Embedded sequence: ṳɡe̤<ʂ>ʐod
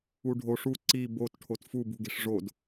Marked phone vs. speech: correct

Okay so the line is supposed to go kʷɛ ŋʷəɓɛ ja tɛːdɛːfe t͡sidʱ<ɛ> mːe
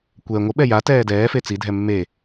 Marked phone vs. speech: correct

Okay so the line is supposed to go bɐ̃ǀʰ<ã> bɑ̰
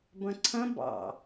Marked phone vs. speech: incorrect: ɐ̃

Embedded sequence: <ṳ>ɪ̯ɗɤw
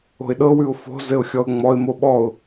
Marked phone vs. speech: incorrect: o̤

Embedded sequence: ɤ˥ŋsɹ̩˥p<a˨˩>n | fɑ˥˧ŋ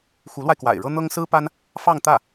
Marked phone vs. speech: incorrect: a˥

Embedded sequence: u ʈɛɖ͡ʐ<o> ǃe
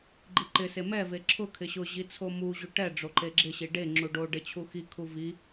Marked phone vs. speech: correct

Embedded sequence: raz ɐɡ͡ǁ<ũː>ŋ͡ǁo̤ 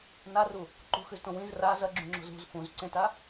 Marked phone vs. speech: incorrect: ũ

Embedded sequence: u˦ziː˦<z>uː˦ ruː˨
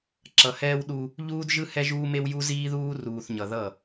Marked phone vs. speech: incorrect: ð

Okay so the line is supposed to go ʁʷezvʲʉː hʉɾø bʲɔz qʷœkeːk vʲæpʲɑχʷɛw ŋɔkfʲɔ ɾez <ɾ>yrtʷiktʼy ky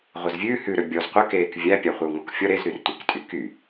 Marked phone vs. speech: correct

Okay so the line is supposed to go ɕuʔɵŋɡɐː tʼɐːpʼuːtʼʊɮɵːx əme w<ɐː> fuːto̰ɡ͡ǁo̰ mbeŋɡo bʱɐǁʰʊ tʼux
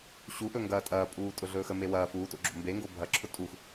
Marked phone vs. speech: correct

